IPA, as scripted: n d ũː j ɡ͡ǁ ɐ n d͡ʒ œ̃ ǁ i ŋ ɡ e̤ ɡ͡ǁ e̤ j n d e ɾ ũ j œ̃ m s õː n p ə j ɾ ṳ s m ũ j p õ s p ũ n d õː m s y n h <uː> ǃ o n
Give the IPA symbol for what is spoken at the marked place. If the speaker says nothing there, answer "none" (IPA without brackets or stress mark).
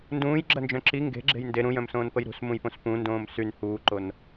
uː